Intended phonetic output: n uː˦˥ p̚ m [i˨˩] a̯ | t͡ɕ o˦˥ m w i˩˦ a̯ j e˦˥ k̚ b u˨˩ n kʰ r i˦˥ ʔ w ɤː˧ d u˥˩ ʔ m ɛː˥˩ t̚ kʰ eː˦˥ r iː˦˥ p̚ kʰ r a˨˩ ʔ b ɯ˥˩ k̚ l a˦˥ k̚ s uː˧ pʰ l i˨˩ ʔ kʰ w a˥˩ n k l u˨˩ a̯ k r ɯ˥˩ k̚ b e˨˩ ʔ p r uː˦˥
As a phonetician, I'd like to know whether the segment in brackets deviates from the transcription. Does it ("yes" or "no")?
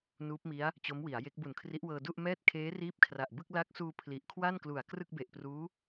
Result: yes